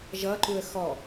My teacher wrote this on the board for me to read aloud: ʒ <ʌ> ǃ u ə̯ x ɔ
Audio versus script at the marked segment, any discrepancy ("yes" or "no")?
no